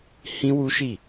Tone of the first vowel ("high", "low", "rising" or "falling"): high